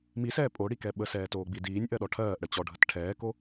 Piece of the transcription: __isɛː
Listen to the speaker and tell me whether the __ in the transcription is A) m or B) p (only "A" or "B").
A